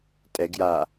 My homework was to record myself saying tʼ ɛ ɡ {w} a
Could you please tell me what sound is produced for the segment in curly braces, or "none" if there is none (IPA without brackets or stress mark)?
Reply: j